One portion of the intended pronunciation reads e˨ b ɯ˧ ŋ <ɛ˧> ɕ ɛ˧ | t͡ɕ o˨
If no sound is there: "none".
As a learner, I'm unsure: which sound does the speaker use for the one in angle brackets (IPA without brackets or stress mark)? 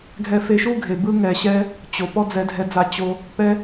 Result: ɛ˨